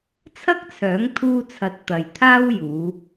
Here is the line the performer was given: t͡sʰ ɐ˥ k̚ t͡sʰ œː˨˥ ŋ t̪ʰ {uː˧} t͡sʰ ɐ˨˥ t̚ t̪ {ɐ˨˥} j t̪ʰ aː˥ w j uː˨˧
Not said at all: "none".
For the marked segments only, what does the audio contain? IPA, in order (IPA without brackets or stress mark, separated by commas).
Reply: uː˧, ɐ˨